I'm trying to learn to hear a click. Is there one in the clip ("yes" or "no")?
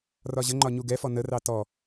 yes